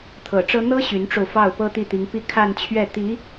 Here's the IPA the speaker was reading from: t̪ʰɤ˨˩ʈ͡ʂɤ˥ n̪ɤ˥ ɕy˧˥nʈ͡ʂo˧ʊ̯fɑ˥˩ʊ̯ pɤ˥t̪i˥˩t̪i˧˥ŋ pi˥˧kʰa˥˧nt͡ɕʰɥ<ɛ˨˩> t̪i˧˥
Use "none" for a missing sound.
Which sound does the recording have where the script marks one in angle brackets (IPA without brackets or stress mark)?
ɛ˥˩